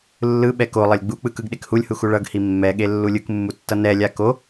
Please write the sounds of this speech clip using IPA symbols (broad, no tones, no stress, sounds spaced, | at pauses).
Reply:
lː ɯ ɓ ɛ k o lˠ ʌ lʲ ɡ͡b u k͡p ɯ k ɯ ɡ ɗ e k h u lʲ h u x u ɭ ʌ ɡ h i mː ɛ ɠ e lː u lʲ ɯ k mː u tː ʌ n ɛ lʲ a k o